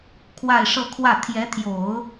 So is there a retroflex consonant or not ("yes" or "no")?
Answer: yes